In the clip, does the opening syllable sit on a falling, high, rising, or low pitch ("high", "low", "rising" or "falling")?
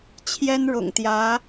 high